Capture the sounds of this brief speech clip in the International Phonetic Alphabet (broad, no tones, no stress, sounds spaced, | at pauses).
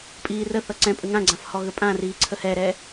pʼ iː r ə θ ʌ ǀ ɛ̃ pʼ ə ŋ ã ɡ͡ǀ ã f h ɔ ɣ ə pʼ ã r iː ǀʰ ə h ɛ ɾ ɛ